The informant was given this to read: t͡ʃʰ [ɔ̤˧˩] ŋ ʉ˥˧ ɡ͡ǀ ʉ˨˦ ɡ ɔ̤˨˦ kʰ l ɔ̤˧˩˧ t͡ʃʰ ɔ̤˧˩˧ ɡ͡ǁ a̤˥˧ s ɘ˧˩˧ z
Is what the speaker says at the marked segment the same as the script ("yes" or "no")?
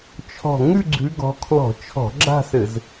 yes